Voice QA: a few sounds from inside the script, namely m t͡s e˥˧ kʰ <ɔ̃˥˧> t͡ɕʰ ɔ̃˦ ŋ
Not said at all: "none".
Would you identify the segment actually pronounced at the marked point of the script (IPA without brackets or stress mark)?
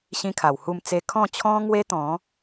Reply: ɔ̃˥˧